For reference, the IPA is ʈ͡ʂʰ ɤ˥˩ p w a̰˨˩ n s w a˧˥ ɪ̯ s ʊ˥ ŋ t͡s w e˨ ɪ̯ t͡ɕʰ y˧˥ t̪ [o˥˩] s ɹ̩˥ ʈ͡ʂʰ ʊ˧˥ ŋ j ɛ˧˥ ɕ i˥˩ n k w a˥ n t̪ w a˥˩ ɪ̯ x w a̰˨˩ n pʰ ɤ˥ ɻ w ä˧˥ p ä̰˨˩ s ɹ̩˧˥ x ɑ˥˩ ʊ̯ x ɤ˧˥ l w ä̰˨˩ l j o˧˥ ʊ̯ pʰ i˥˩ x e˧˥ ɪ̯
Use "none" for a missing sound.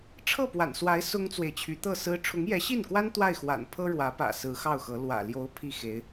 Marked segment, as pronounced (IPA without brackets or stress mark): ɤ˥˩